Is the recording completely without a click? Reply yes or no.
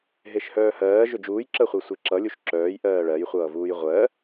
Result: no